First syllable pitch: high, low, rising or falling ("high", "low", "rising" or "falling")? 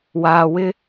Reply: low